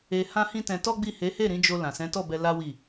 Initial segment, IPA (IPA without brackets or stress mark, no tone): e